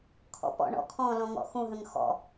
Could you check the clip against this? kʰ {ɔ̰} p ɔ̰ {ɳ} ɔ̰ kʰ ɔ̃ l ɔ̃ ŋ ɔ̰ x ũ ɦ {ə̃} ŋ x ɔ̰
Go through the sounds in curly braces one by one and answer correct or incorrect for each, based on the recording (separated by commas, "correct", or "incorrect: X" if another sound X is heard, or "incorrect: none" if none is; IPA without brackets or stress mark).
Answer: correct, correct, correct